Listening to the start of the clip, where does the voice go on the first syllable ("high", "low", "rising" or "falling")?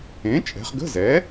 rising